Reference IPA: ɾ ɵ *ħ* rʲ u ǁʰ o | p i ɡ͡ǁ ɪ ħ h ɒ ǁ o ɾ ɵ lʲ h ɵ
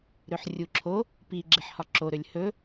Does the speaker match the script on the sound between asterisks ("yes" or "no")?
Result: yes